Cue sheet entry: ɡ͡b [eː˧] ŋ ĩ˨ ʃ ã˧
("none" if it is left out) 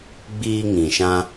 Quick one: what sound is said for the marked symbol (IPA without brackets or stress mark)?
iː˧